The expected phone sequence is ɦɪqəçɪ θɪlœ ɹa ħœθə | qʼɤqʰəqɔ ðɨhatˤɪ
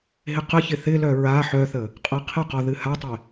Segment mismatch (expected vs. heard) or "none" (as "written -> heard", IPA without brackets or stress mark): none